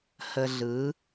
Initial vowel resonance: oral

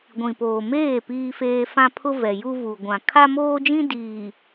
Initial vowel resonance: nasal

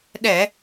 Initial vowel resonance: oral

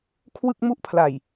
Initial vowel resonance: oral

